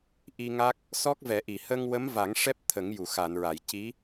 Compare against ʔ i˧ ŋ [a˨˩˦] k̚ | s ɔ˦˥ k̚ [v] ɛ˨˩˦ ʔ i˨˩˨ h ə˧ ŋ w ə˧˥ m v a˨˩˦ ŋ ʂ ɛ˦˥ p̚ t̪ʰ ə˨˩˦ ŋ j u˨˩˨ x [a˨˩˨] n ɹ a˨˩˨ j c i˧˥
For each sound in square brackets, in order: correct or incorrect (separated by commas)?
incorrect, correct, correct